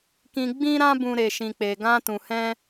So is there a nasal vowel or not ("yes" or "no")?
yes